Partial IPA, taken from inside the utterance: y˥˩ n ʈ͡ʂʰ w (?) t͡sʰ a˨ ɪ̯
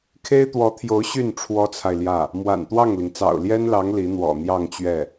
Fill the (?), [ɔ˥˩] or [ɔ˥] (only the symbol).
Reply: ɔ˥